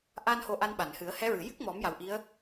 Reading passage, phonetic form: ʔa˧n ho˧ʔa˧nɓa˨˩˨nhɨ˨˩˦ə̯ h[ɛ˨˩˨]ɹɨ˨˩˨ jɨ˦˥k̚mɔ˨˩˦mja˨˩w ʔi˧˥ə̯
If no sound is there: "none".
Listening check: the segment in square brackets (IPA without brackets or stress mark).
ɛ˧˥